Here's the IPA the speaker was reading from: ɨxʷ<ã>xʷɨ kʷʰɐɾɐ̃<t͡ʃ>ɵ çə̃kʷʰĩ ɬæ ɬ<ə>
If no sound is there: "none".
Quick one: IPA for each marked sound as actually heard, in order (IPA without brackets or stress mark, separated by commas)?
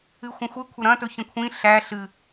ɐ̃, t, ɨ